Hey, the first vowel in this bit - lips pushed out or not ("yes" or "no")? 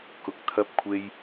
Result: yes